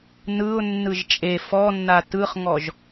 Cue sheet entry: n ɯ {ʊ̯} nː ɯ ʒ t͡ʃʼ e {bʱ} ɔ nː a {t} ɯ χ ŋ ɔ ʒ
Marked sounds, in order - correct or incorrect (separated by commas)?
correct, incorrect, correct